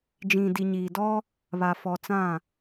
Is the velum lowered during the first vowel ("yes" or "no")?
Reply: yes